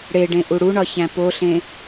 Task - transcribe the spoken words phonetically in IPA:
ɽeɖẽ ʔuɽuɳɒ çæ̃poɬẽ

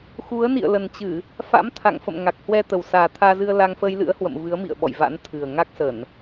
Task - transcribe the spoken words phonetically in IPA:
xu˨˦ə̯ nḭ˧˨ə̯lə˨˩nt͡ɕɨ˧˩˨ | fa̰˧˥mt̪ʰa̰˧˨ŋfə̰˧˨m ŋa˨˩k̚hwɛ˧t̪ə˨˩wsaː˨˩ t̪ʰaː˧zɨ˧ə̯la˧ŋ fəː˧jlɨ̰˧˥ə̯hwə̰˧˨m vɨ˨˦ə̯mḭ˧˨ə̯ɓɔ̰˧˨j va̰˧˥nt̪ʰɨ˨˩ə̯ ŋa˦˥k̚sə˧˩˨n

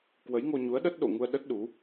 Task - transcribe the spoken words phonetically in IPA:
kwə˨˦jŋo˧ɲu˨˦ə̯ ɗə˦˥t̚ɗo̰˧˨ŋu˧ə̯ ɗə˦˥t̚ɗu˨˦

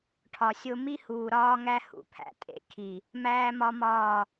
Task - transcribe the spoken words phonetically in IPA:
ʈʰɒ˨sʲo˦ mi˦huː˨ ɾɒː˦ŋæ˦ hṵ˨pʰæ̰˨tʼḛ˨˦ kʰi˨ | mæː˦mɒ˦mɒː˦˨

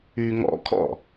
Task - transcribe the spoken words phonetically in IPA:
y ŋɔ̰kʰɔ̰

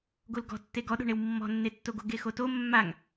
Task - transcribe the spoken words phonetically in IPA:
ɡolɡɔ̤tːe ɡɔɗo̤ɳew mːɔ̤nːetːoɡo ɡexoto mːaŋ

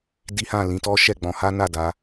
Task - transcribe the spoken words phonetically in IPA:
di˦hã˦˨ lĩ˧tɔ˦ ʃɛ˦˨ɡ͡bɔ̃˧ha˦na˦˨ da˨˦

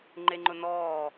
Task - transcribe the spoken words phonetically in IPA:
ŋ͡ǃeŋ͡ǃʊnɔː

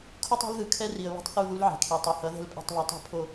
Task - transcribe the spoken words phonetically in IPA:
kʰu˦tˤe̤˦lðɯ˨kʰɛ˦ ri˨ə̯βɛ̤˦tˤθu˦˨ ðu˦lʕɛ̤˨kʰi˨ tˤe˨hʌ˨˦ ðɛ̤˦lpʼɛ̤˦˨tˤβi˨ tˤe̤˦pʰo˨

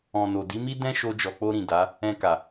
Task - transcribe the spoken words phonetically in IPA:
ɔ̃˨no˨ di˨˦mi˦ dɛ̃˦ʃo˧ d͡ʒɔ˨k͡po˧ɾĩ˨ da˨˦ | ɛ̃˧ka˨

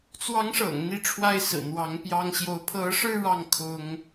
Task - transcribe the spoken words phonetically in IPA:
t͡swɑ˧˥ŋʂɤ̰˨˩ŋ n̪i˥˩ʈ͡ʂʰwa˥ɪ̯sɹ̩˨˩n̪wɑ˧˥ŋ pjɑ˥ŋ ɕjo˧˥ʊ̯ pʰɤ˧˥ʂɻ̩˥˧ ɻɑ˥˩ŋ kʰʊ˥ŋ

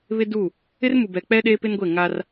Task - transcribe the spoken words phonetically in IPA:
βɪ˦du˦˨ | ɪ˦rmu˨bɛ˨k͡pɛ˦ ɗeː˦pɪ˦n ɡʷe˦˨ŋa˦r

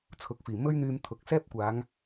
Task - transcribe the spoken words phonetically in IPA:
t͡sʰʊ˨˥k̚fiː˨˩ mɵ˥ɥn̪yː˧m t̪ʰʊ˨˥k̚ sɛː˥p̚kʷaː˨˧ŋ

